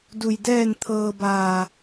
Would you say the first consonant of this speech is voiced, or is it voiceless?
voiced